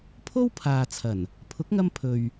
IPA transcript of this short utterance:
pʰ o˥ w pʰ aː˨ t͡sʰ ɐ˨˩ n | pʰ ʊ˨˥ k̚ ŋ ɐ˧ m pʰ ɵ˨ ɥ

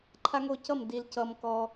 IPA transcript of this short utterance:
ǃʰ a˦ ŋ o˥˩ c ʌ˥˩ m d i˨ l c ʌ˨ m k ɔ˨

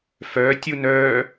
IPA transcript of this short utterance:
f œː tʲ u n œː

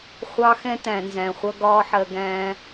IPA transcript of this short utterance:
χʷ ɑ˦ x ɛ̃˦ t æ̃˨ n z æ̃˨ χʷ ʌ˧ ɡ ɒː˦ ħ ɜ˧ ɡ æ̃ː˦

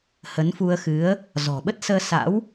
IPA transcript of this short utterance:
h ə˨˦ n f u˧ ə̯ x ɨ˨˦ ə̯ | z ɔ̤˨˩ ɓ ə˦˥ t̚ s əː˧ s a̰˧˥ w

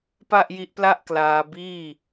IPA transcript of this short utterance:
p a˥˩ ʔ j i˦˥ ʔ p l a˥˩ ʔ k l aː˧ b iː˥˩

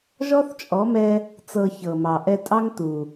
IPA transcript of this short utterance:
ʒ ɔ˦ θ t͡ʃʼ ɔ˨˦ m ɛ˧ | t͡s ɤ˧ ç ɤ˨ m ɑ˨ ʔ ɛ˧ tʼ ɑ˦ ŋ t u˨

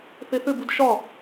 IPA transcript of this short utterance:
θ e θ ʏ b u d ʃ ɒ

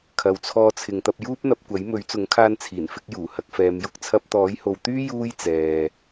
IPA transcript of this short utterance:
kʰ ɐ˨ w t͡sʰ ɔː˧ t͡sʰ ɪ˨ ŋ t̪ ɐ˧ p̚ j uː˥ p̚ n̪ ɐ˧ p̚ kʷ ɐ˨˥ j m ɵ˨˥ ɥ t͡s ʊ˨˥ ŋ kʰ aː˧ n t͡sʰ iː˨˩ n f ɪ˧ k̚ j uː˨˩ h ɐ˧ k̚ f ɛː˨˧ m j ʊ˥ k̚ t͡sʰ ɐ˧ p̚ t̪ ɔː˨˥ j h o˨ w t̪ yː˥ j uː˥ j t͡s ɛː˨

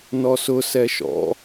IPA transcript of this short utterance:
n ɔ s ʊ s ɛ ʃ ɔ̰

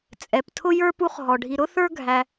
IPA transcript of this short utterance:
t͡sʼ ɛ˩ p tʰ ʊ˥ j ə˞˥ p u˦ χ ɦ ɔ˩ ɖʱ i˨ ɾ ʊ˥ θ ə˞˦ ɡʱ æ˨

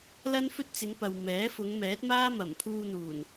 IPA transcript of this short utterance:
l ɐ˥ n f ɵ˥ t̚ t͡s ɪ˨˧ ŋ p ɐ˨ w m ɛː˨˥ f ʊ˨˧ ŋ m ɛː˨˥ t̚ m aː˥ m ɐ˨˩ m pʰ uː˧ n̪ uː˨˩ n

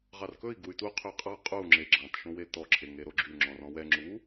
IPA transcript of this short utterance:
ʁ ɑ r k ɵ i̯ ɡ u y̯ t u qʰ ø qʼ ɑ qʼ u ŋ͡ǁ e ɡ͡ǁ ɑ̃ t ʃ õ w e t ɔ ǁʰ e ŋ e ɾ o ɡ͡ǁ y ŋ͡ǁ ɔ̃ r ɔ̃ w ɛ ŋ͡ǁ u

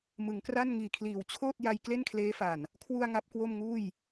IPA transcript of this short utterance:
m ɯ˩˦ ŋ k r a˥˩ n ŋ iː˨˩ kʰ l iː˨˩ w t͡ɕʰ oː˥˩ t̚ j a˧ j k l e˥˩ n kʰ l eː˦˥ f a˨˩ n | kʰ w u˧ a̯ ŋ a˦˥ p̚ k w o˥˩ m ŋ uː˥˩ j

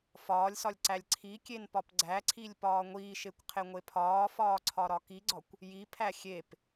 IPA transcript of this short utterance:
f ɒː lʲ s ɒ lʲ ǀ æ lʲ ǀʰ i kʲ e n p ɒ p ɡ͡ǀ æ ǀʰ i lʲ p ɒː ŋʷ iː ʃ e kʷ qʰ e ŋʷ e pʰ ɒː f ɒː ǀʰ ɒ ɾ ɒ k i ɡ͡ǀ ɒ kʷ | j i pʰ æ xʲ e p

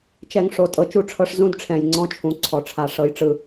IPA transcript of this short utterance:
t͡ʃ ɛ˨ ŋ ʂ o˨ tʼ ɤ˨ t͡ʃ u˦˨ ʈ͡ʂʰ ɤ˦ ʂ z ũ˦ d ʈ͡ʂʰ ɛ̃˨ j ŋ͡ǀ ɔ̃˦ t͡ʃʰ ũ˨ ǀʰ ɔ˨ ʈ͡ʂʰ a˨ ʂ ɤ˦ j ʈ͡ʂ ɯ˦

